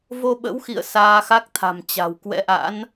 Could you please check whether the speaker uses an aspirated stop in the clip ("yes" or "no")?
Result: yes